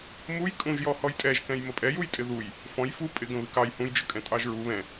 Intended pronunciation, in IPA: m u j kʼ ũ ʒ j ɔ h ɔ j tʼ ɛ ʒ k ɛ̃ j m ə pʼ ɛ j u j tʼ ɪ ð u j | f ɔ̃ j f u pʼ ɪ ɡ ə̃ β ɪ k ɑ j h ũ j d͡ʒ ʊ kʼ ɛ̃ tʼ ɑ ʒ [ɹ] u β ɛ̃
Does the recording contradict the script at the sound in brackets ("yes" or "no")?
no